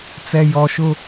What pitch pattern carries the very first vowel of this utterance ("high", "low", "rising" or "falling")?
low